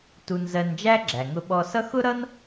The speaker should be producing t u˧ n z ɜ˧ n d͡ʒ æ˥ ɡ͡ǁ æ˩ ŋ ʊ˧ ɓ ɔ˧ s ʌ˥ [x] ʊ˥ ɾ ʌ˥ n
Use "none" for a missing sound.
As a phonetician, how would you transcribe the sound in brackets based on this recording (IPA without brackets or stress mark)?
x